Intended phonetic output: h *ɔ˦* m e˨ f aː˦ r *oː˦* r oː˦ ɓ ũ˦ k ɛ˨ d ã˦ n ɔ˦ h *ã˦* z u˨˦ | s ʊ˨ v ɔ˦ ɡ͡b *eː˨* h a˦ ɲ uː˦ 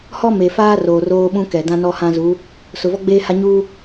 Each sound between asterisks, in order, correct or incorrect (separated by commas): correct, incorrect, correct, incorrect